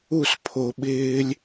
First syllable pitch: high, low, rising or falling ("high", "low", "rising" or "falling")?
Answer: falling